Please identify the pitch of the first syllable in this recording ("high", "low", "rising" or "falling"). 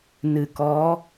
low